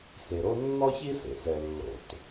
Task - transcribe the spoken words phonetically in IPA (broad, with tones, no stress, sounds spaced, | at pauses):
s e˩ ɾ o˥ nː ɔ˥ ç i˥ s ḛ˩ s ɛ˩ lː o̰˩ t